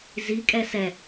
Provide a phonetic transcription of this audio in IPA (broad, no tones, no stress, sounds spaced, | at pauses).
z i kʼ ɛ s ɛ